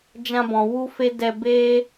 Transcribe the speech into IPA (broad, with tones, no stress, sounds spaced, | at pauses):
d͡ʒ ã˧ b ɔ̃˨ w u˦ f e˦ d ɛ˧ b eː˦